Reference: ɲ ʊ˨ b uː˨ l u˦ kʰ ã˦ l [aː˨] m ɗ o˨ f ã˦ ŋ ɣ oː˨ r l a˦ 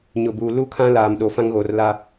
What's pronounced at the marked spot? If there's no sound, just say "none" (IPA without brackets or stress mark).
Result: aː˨